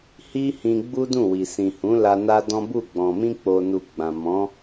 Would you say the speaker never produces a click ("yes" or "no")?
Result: yes